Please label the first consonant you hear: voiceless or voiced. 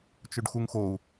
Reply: voiceless